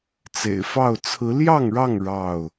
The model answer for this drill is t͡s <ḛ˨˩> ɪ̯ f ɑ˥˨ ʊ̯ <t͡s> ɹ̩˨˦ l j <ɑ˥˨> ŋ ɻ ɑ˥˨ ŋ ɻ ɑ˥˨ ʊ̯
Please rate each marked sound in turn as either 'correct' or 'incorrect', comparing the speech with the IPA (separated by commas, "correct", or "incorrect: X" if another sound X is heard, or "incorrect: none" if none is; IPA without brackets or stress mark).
correct, incorrect: t͡sʰ, correct